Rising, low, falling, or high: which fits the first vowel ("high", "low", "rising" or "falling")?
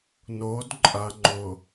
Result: rising